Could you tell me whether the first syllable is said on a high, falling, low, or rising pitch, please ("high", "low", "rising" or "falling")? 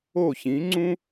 falling